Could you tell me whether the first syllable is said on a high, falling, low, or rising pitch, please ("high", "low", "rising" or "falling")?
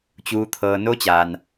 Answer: rising